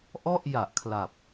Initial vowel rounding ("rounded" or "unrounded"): rounded